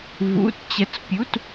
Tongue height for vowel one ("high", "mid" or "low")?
high